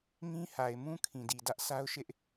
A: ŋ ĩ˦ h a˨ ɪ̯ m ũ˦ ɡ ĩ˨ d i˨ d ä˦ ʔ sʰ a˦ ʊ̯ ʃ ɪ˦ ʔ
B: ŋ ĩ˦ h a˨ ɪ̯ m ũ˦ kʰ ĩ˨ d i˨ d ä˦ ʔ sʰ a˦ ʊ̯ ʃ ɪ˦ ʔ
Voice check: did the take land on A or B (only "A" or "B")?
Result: B